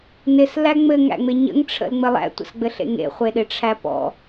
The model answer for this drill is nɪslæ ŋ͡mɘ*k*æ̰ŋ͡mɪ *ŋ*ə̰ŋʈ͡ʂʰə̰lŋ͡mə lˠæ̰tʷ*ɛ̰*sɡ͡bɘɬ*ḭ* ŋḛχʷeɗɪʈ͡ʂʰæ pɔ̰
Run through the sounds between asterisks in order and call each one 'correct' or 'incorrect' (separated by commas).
incorrect, incorrect, incorrect, incorrect